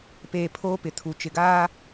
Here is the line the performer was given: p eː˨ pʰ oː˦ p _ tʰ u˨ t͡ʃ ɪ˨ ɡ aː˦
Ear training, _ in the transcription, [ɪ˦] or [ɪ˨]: ɪ˨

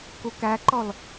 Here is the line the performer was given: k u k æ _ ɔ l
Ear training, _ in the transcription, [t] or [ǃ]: ǃ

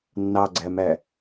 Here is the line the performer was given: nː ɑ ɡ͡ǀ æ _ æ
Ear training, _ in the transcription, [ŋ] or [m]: m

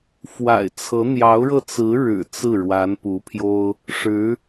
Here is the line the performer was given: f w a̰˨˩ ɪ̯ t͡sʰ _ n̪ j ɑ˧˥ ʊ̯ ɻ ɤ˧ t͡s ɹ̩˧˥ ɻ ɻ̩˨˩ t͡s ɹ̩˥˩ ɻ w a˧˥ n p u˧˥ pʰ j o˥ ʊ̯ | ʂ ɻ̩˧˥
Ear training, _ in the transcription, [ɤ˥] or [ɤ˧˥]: ɤ˧˥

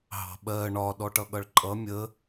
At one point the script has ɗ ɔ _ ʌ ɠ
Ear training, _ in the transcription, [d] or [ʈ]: ʈ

